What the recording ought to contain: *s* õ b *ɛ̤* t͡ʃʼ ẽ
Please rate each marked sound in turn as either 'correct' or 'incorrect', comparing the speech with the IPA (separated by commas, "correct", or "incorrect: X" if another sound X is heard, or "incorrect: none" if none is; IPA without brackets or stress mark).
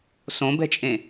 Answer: correct, correct